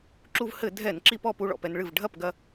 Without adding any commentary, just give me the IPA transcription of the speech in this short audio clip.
ǁ u˧ v h ɘ˧˩˧ dʱ ɛ˧˩˧ n ǁ i˧ p ɔ˧ p u˥˧ ɭ ɔ̰˥˩ p ɛ˧ n ɭ ɨ˥˩ v ɖʱ ɐ˥˩ p ɡ ɐ˧

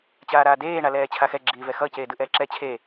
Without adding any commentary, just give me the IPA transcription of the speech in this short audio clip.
t͡ɕ aː ɾ aː d eː ɳ a l ɛː t͡ɕʰ a x ɛ ɡ͡ǁ iː v ɛ x ʌ c eː d ɯ ʔ ɛː ǁ ɛ t͡ɕʰ e

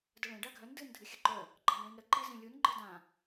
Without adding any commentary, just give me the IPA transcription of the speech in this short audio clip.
d ə ɭ ẽ ɖ a ɡʱ œ n d ɨ n dʱ ɨ xʲ ə ǃ œ | ɡ͡ǃ ɑ n ɭ ĩ n ɾ ə ǃ i z ĩ lʲ u n ɡ͡ǃ ɨ d ã

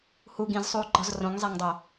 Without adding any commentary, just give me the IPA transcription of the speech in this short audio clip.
h u ɡ ĩ z sˤ uː ɡ͡ǃ ɒ z r õ ŋ zˤ e ŋ dˤ o

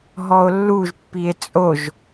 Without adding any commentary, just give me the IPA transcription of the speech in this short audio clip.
ɦ ɔ o̯ lː u ʒ pː i e̯ t͡sʼ o ʒ

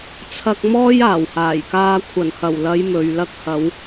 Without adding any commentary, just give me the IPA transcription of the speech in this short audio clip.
t͡sʰ ɐ˧ k̚ m ɔː˥ j aː˨˩ w h aː˨˩ j k aː˧ kʷʰ ɐ˨˩ n h ɐ˨˩ w l ɐ˨˧ j m ɵ˨ ɥ l ɐ˥ k̚ h ɐ˨˧ w

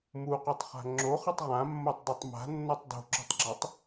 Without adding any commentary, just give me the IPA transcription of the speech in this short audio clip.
m u q u tˤ χ a̤ ŋ͡ǁ o χ ɯ tˤ ʁ ã mː o tˤ dˤ ɤ tˤ m a̤ nː ɔ tˤ d o̤ ǁ o̤ tˤ ɡ͡ǁ ɔ tˤ

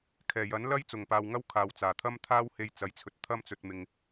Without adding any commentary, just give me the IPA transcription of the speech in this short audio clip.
kʰ ɛː˨˩ j ɐ˨˥ n l ɐ˥ j t͡s ʊ˨˩ ŋ p aː˨ w ŋ ɐ˥ w kʰ aː˨ w t͡s aː˨˩ t̪ʰ ɐ˥ m t̪ʰ aː˥ w h e˧ j t͡s ɐ˨˥ j t͡sʰ ɵ˨ t̚ t̪ʰ ɐ˥ m t͡s ɵ˧ t̚ m ɪ˧ ŋ

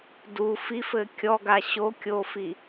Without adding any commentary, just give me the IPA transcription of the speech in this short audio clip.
d u f i f ɘ kʲ ɔ ɡ a ɕ o kʲ o f i

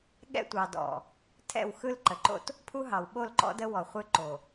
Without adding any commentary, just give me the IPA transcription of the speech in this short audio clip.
ɠ ɛ̰˦ tʷ ɑ˨ d ɔ̰˨ | tʰ ɛ̰˦˨ w x ɯ˦ l ǃ ə˨ ǃ o̰˦ t | pʰ u˦ ɦ ɑ˨ w ɓ o˦˨ l ǃ ɔ̰˦ d ə˦ w ɔ˨ χʷ ɯ˦ ǃ o˨

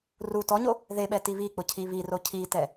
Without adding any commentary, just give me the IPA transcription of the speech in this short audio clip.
r u t ɔ ɲ o | ð e ɓ ɛ t i β i k͡p ʊ cʰ i β i r o cʰ i t ɛ

